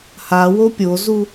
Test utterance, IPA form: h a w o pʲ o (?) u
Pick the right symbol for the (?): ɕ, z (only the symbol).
z